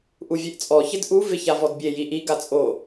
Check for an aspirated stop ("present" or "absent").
absent